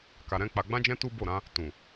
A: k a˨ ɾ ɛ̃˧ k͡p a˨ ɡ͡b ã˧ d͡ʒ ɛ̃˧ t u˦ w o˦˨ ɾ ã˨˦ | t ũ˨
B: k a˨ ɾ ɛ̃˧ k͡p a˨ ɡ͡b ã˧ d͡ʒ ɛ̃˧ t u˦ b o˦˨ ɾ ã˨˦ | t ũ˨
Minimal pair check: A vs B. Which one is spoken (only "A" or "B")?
B